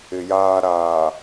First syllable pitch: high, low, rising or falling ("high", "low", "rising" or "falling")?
low